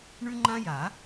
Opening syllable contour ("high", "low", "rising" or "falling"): high